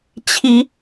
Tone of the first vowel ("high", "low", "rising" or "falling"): high